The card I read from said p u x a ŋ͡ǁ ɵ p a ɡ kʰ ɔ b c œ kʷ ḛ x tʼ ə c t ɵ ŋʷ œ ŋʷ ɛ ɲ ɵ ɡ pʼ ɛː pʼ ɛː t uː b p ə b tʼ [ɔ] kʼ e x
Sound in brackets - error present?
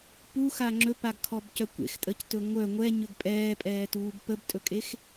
yes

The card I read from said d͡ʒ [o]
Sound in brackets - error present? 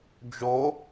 no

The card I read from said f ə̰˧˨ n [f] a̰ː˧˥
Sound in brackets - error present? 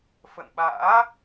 yes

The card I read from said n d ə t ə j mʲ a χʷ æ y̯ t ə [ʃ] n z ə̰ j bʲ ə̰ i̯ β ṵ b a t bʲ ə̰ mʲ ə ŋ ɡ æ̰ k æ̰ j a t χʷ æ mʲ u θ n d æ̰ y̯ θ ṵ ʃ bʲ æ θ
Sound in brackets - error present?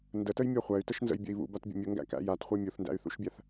no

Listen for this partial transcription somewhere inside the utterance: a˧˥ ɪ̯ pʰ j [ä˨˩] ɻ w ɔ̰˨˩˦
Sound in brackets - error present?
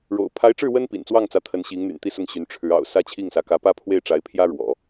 yes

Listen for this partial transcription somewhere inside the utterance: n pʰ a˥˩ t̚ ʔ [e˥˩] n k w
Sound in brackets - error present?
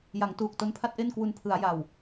no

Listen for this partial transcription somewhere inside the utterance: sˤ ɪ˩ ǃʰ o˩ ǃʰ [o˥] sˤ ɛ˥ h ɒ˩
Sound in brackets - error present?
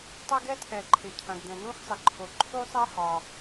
yes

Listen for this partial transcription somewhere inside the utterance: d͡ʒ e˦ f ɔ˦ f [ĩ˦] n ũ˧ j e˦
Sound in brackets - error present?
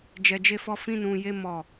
no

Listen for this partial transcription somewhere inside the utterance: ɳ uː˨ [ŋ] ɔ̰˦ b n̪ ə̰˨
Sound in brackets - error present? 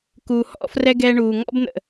no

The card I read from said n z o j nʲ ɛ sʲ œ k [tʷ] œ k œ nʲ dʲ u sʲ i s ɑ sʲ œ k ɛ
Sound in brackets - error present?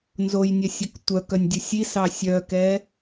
no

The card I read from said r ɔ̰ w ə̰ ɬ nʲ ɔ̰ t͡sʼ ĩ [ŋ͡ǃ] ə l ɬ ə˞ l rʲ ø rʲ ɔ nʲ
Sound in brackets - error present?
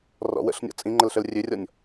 no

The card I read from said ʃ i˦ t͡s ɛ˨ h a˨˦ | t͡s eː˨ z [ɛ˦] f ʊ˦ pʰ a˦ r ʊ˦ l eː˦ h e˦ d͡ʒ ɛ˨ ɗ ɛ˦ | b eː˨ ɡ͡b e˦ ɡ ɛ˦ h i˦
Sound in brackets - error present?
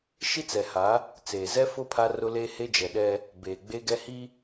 no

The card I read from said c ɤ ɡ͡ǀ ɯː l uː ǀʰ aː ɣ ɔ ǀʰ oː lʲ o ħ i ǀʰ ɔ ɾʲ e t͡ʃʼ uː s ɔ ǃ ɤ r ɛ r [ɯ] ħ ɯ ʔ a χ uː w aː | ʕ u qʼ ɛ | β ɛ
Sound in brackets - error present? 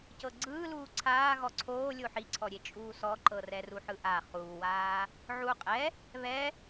yes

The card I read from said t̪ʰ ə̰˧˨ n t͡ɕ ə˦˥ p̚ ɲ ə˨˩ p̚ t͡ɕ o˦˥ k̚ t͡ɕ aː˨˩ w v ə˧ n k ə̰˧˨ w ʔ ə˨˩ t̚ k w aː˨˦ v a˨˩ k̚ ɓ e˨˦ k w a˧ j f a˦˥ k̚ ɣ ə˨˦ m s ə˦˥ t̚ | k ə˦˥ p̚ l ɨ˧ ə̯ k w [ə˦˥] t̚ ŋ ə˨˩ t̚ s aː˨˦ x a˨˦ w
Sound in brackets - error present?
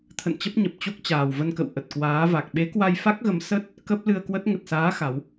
no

